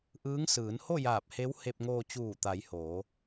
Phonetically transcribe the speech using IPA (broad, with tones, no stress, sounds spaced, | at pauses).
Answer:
ʔ ɯː˧˥ ŋ s ɯː˩˧ n h o˥˨ j aː˧˩ p̚ h e˧˥ w h e˧ p̚ ŋ oː˧ t͡ɕ uː˧˩ t̪ a˩˧ j h oː˩˧